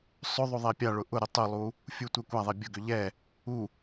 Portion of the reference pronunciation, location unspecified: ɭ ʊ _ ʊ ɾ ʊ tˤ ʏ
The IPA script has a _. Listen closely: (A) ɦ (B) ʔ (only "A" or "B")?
B